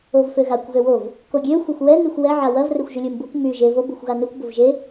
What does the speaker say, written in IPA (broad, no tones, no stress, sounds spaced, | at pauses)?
o v f ø ɣ a kʷ ɣ ø w o v | k o ɡʲ ø xʷ e xʷ w ɛ n y xʷ w ɛ ʕ a w ɐ v r ʏ xʷ ʒ ʏ lʲ u m b u kʷ m y ʒ e v o b u xʷ ɣ a n y kʷ b o v ʒ e